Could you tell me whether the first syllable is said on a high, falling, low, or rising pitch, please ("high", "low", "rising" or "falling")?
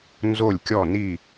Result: falling